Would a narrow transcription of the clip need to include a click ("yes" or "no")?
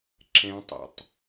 yes